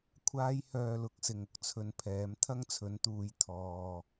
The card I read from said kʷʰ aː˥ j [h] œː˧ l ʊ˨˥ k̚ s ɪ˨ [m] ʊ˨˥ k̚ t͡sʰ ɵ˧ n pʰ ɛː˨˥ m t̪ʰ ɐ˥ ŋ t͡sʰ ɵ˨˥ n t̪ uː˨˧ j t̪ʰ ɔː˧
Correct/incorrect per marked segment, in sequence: correct, incorrect

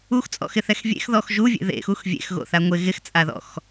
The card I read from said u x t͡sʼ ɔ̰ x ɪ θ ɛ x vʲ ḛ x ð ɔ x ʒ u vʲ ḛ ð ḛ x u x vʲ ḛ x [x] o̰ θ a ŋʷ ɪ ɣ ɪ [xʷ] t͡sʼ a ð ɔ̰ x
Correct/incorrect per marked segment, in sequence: incorrect, incorrect

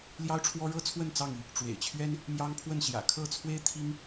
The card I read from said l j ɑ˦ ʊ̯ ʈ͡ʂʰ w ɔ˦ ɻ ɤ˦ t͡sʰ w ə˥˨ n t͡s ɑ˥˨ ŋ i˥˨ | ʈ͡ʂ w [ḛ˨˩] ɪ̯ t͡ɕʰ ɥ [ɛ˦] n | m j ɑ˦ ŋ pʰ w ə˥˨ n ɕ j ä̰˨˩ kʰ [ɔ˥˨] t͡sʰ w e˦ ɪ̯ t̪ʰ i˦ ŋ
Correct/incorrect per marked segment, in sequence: correct, correct, incorrect

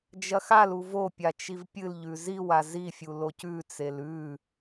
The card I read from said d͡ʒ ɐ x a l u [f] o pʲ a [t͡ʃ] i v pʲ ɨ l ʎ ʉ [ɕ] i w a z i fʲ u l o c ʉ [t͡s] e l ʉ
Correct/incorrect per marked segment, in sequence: incorrect, correct, incorrect, correct

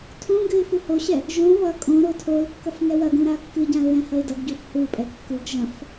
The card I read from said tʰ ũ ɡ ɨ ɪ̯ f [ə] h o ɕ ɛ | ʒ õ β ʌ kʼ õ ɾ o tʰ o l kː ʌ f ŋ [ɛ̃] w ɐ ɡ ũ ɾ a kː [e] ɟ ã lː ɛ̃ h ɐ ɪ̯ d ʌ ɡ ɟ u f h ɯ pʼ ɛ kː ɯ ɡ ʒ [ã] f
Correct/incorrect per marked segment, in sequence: incorrect, incorrect, incorrect, incorrect

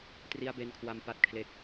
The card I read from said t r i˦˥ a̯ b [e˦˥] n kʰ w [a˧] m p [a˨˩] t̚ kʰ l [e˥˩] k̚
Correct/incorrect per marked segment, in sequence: incorrect, correct, incorrect, incorrect

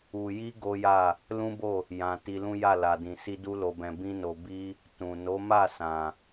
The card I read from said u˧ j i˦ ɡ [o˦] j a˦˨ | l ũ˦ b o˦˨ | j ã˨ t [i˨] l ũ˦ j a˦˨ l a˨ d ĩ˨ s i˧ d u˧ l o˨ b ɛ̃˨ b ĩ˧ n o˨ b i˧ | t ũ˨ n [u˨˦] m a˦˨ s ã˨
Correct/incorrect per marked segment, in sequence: correct, incorrect, incorrect

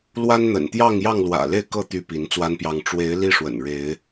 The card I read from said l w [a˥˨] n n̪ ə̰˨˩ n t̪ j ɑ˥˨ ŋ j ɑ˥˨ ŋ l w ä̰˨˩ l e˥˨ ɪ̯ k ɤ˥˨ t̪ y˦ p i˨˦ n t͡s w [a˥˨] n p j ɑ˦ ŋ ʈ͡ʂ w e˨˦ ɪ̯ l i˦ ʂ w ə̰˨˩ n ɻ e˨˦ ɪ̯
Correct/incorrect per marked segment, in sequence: incorrect, incorrect

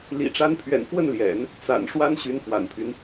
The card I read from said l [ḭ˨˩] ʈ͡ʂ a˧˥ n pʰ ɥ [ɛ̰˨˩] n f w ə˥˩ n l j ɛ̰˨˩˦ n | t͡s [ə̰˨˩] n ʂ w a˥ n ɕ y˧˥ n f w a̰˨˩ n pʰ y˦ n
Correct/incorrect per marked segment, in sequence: correct, correct, incorrect

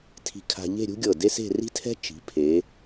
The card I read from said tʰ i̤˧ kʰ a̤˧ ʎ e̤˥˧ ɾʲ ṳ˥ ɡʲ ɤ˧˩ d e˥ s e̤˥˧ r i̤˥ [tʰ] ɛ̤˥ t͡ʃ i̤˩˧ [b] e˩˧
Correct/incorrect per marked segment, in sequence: correct, incorrect

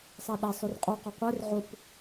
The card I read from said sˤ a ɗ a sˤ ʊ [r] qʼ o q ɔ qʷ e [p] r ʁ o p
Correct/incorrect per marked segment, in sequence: correct, incorrect

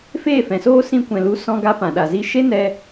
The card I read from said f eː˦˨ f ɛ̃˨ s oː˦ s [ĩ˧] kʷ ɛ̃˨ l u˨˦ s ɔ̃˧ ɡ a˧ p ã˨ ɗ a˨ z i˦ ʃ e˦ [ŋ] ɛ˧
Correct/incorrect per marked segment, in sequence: correct, incorrect

